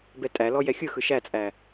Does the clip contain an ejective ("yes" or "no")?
yes